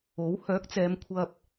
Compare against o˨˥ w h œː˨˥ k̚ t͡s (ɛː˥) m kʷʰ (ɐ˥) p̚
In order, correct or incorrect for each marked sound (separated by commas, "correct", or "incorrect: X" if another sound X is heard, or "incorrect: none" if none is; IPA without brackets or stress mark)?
incorrect: ɛː˨˧, incorrect: ɐ˧